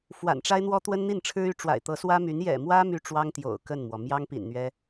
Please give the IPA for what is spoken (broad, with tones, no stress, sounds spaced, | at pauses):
f w a̰˨˩ n ʈ͡ʂ a˥ ɪ̯ n̪ w ɔ˥ t̪ w ə˥ n n̪ i˥˩ n ʈ͡ʂʰ ɻ̩˥ y˧˥ ʈ͡ʂ w a̰˨˩ ɪ̯ t̪ ɤ˧˥ s w ä˥ m y˧˥ n j ɛ̰˨˩ m w ä˥ m y˥ ʈ͡ʂ w ɑ˥ ŋ t̪ j o̰˨˩ ʊ̯ k ə˥˩ n m w ɔ˩ m j ɑ˥ ŋ p ḭ˨˩ n n̪ ɥ ɛ˥